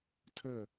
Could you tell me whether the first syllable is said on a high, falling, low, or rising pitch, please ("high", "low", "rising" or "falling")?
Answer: falling